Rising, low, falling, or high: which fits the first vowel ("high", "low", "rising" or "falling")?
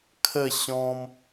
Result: falling